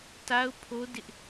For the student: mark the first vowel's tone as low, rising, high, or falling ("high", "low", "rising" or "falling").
high